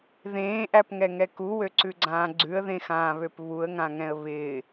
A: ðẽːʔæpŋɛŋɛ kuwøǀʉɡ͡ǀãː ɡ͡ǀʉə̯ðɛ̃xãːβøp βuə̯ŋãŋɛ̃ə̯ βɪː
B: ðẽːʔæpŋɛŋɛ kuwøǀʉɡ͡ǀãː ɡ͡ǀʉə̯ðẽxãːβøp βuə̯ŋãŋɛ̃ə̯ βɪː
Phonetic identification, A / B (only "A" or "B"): B